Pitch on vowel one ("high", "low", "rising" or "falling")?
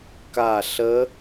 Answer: falling